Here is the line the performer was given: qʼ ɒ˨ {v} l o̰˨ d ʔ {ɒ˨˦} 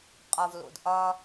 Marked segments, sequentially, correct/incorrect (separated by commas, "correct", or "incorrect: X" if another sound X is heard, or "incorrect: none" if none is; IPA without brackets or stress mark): correct, incorrect: ɒ˦